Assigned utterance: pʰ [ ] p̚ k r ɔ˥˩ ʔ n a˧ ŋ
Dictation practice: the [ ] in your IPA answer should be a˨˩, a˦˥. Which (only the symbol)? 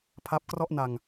a˦˥